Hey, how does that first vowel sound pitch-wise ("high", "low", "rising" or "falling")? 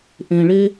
low